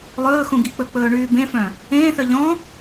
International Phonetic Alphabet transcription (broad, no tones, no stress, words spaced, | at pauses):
lˠɵːxũ ɡik͡pɵk͡pɵː ɳyːbẽfœ̃ | ẽːθœ ʎɔ̃